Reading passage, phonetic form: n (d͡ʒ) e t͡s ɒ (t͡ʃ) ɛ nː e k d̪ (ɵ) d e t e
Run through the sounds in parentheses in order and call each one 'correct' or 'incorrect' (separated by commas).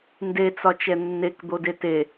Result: incorrect, correct, incorrect